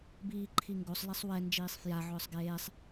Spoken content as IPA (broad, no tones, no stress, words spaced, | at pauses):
biːǃʰiŋɡosˤ lɛsˤwɛ nd͡ʒiːsˤfja ʕʊːsˤɡeːsˤ